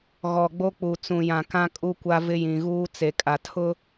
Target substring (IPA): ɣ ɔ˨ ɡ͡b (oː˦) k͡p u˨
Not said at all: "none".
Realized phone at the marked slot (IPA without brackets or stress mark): o˦